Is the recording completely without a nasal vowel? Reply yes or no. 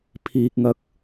yes